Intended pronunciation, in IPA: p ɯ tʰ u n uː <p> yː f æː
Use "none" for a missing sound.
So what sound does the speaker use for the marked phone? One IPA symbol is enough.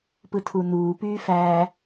p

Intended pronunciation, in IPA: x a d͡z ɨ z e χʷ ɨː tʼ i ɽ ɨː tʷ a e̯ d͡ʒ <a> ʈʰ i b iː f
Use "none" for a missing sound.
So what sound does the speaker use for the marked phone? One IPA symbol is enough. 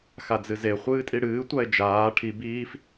aː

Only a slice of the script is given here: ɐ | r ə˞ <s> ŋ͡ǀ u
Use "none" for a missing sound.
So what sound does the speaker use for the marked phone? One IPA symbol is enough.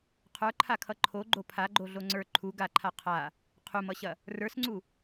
s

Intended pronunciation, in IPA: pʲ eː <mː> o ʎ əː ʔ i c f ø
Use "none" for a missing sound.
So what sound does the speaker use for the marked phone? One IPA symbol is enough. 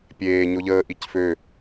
ɲ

